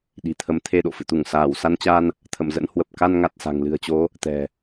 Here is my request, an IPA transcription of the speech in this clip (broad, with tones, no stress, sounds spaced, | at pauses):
ɗ i̤˨˩ t̪ʰ ə˨˦ m t̪ʰ e˧ ɗ o̰˧˨ f ɨ̰˧˨ t̪ u˧˩ ŋ s aː˧˩ w s a˧ n t͡ɕ a˧ n | t̪ʰ ə̰˧˨ m z ə̰˧˥ n h w ə˨˩ p̚ k a˧ n ŋ a˨˩ t̚ s a̤˨˩ ŋ l ɨ̤˨˩ ə̯ t͡ɕ o˨˦ | t̪ ɛ̤˨˩